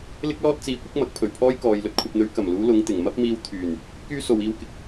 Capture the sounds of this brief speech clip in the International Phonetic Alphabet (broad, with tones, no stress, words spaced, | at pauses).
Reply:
lɪ˥k̚lɔː˥t̚ t͡siː˨˥kʷɪ˥k̚ mɐ˨˥k̚pʰɵ˨˩ɥpʰɔː˥j kɔː˨j lɵ˨t̚kʷʰɐ˨p̚n̪ɵ˨˧ɥ kɐ˨˩mluː˨˧ lʊ˨˧ŋt̪ɪ˨˩ŋ mɐ˥p̚miː˧w t̪ʰyː˨˩n | kyː˥so˨wiː˧wkɪ˨k̚